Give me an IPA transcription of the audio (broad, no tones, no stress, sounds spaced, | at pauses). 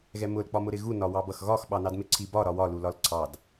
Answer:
ɣ ɛ m ʊ l k͡p ɒ m ʊ ɾ ɪ ɣ u n ɒ w ɑ b ʌ x ɣ ɒ x ɓ ɑ n ɑ d m ɪ ǀʰ i b ɒ ɾ ɒ w ɒ l u l ɒ l ǀʰ ɑ d